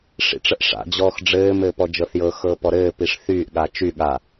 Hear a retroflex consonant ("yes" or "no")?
yes